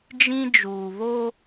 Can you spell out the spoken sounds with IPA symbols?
d͡ʒ ĩ˦ d͡ʒ uː˨ β o˦

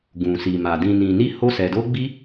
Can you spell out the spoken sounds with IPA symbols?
ɡ ũ˨ s i˨ m a˨ d ĩ˨ n ĩ˨ n i˧ h o˧ s ɛ˨ d o˧ ɡ͡b i˦

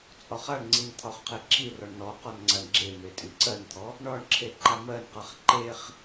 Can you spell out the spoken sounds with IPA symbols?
t͡sʼ ɒ χ a ɳ ŋ͡ǀ i n t̪ʰ ɒ χ qʰ e ǁʰ i r ɔ ɳ n ɔ q ɔ n ŋ͡ǀ a ɳ ɡ͡ǁ e m e tʼ i ǀ ɜ n t̪ʰ ɔ | ɳ ɒ ɳ ǁʰ e ǃ a m ɜ n q a χ ǃ e χ

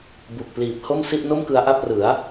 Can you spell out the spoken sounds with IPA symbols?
b u˨˩ k̚ p l iː˨˩ p̚ h o˥˩ m s i˥˩ ʔ n o˥˩ m k ɯ˧ a̯ ʔ a˥˩ p̚ r ɯ˩˦ a̯

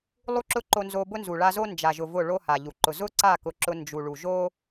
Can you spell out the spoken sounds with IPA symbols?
lˠ u˦ ǁ ʊ˦ ǃ o˧ n z o˧ b ʊ˦ n z u˨ ɭ a˧ z o˦ n d͡ʒ a˨ ʒ ʊ˨ v ʊ˦˨ ɭ o˦ h a˨ ʎ u˨ ǃ ʊ˨ z ʊ˦ ǀ a˦˨ k ʊ˨˦ ǁ ʊ˧ n d͡ʒ u˨ ɭ u˨ ʒ o˦

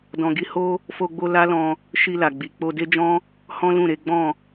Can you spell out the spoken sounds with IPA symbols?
d ɔ̃˧ ɡ i˦ h o˦ | f o˧ ɡ͡b o˧ l a˦ l ɔ̃˧ | ʃ i˧ l a˨ ɡ͡b i˨ k͡p o˧ d e˦ d͡ʒ ɔ̃˦ | h ɔ̃˦ l ũ˦˨ ɾ e˨˦ ɡ͡b ɔ̃˦˨

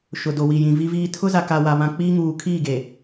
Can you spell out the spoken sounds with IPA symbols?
ʃ ʊ˨ d o˨ w i˨ j ĩ˨ v i˦ v iː˦ tʰ ʊ˦ z a˨ k a˨ w a˨ β ã˨ k͡p iː˦ ŋ uː˨ kʰ iː˦˨ ɡ e˨

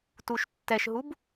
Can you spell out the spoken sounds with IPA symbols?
t u ʃ tː ɛ ʃ ɦ u b

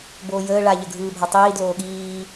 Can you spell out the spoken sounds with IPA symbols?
b oː j əː ɭ a ʎ ə ɡʱ ɯː bʱ a tˤ iː d l oː ɠ iː

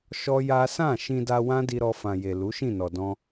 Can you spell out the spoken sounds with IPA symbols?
ʃ ɔ˦ j a˦ s ã˦˨ ʃ ĩ˧ d a˧ w ã˦ d i˧ ɾ ɔ˧ f ã˨ j e˨ l u˨˦ ʃ ĩ˦˨ n ɔ˨ d ɔ̃˧

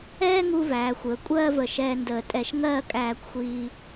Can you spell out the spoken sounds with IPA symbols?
ɛː˥ ŋ u˧ v æː˩˧ xʷ əː˩˧ kʷʼ ɜː˥˧ v ə˧˩ ʃ ɛː˧ n d əː˧˩ tʼ ɛ˧˩ ʃ ŋ ɜː˥˧ kʼ æː˧ kʷ xʷ iː˧

